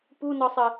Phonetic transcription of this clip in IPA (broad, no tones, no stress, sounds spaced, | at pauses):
p u n ɔ sˤ ə